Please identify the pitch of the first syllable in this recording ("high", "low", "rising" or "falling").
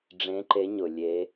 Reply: rising